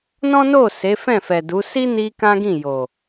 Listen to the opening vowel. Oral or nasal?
nasal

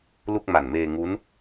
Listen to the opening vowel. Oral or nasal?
oral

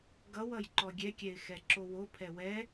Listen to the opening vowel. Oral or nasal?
oral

